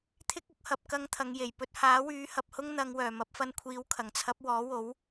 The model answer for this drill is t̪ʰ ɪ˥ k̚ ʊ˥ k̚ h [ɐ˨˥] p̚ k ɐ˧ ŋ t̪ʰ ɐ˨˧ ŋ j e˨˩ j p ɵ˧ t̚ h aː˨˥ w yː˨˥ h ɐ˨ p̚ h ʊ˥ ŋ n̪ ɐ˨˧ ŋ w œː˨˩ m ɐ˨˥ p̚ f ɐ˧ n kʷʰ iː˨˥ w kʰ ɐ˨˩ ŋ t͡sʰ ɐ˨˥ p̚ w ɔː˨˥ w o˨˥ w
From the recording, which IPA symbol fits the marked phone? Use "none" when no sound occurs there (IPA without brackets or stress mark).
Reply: ɐ˨˥